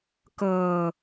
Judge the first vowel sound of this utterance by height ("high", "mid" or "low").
mid